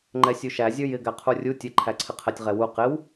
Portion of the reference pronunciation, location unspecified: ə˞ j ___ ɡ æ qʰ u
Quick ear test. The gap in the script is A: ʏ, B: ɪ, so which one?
B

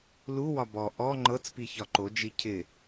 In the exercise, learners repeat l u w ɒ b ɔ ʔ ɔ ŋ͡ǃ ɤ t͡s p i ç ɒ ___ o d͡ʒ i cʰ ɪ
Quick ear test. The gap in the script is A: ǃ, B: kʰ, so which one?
A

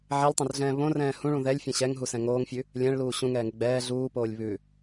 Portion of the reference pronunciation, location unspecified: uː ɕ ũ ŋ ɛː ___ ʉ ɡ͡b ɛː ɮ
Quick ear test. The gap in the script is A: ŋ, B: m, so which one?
A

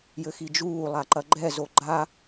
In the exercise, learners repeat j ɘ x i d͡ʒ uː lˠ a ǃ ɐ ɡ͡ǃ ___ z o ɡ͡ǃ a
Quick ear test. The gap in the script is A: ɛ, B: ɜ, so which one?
A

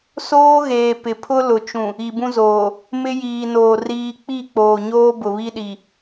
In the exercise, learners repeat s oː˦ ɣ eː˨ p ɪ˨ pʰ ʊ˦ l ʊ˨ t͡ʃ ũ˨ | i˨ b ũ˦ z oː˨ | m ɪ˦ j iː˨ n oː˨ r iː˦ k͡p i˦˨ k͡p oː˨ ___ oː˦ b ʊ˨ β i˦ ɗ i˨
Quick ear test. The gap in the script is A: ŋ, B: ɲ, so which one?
B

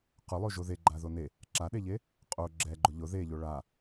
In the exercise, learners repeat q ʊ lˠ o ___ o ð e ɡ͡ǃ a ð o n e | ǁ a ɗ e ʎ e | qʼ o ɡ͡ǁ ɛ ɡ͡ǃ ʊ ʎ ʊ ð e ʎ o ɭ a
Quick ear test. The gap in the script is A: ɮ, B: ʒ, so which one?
B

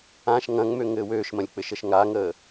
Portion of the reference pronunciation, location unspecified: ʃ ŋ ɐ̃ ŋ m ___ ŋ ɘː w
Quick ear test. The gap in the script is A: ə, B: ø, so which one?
B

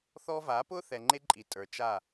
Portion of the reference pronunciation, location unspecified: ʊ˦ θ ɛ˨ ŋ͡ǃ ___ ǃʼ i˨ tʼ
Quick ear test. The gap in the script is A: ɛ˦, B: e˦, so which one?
B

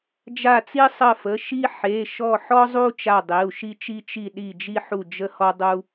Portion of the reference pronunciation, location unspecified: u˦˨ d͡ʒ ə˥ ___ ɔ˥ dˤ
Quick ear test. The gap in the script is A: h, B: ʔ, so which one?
A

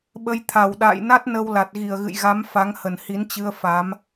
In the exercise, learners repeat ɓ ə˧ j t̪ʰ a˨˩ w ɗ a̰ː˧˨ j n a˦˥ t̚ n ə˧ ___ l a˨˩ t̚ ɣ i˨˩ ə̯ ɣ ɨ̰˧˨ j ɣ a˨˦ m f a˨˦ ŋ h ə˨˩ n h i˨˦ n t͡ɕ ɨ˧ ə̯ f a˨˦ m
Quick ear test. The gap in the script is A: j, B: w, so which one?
B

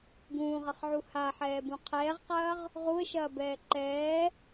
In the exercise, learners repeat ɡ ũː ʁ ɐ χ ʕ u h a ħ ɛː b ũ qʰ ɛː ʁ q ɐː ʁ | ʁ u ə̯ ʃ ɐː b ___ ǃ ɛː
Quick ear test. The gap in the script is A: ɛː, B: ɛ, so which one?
A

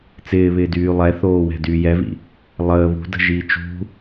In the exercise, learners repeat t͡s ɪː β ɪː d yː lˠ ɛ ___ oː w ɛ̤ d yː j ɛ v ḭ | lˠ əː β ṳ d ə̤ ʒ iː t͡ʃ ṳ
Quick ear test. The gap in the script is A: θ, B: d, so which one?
A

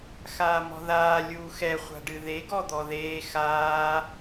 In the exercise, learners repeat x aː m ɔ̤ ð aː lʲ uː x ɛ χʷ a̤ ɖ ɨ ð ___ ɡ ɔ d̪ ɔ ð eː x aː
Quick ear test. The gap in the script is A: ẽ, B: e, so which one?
B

